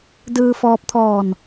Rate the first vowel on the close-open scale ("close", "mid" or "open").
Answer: close